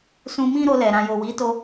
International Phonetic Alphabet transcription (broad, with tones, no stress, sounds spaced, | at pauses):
s ũ˧ m ĩ˦ ɾ o˧ l ɛ˨ ɾ ã˨ j o˨ w i˨˦ t o˧